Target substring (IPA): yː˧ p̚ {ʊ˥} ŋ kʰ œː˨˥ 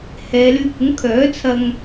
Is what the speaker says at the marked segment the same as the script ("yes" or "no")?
no